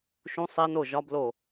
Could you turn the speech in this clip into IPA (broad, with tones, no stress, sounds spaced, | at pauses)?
ʃ ũ˧˥ sˤ e˧˥ n o˥˩ ʒ ɒ˧˥ b l o˥˩